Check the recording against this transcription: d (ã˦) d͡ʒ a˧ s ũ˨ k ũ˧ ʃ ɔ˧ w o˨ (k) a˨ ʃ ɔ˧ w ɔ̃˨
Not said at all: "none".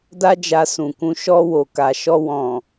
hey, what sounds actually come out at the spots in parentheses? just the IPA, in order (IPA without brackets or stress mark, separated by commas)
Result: a˦, k